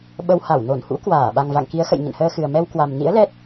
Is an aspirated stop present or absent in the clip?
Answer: absent